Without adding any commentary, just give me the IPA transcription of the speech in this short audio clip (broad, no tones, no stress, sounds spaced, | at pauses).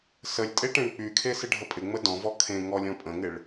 s ə lʲ tʼ e ʈ ẽ ɳ k͡p y kʰ e s ɪ ɖʱ ə pʼ ɪ ŋ͡m ə d ɔ̃ v ɔ kʰ ẽ ŋ ɔ lʲ ɔ̃ pʼ ə̃ ŋ ɪ ɭ